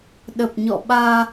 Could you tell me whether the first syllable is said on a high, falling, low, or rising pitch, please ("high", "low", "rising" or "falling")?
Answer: low